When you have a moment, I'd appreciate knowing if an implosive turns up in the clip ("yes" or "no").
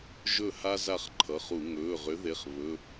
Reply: no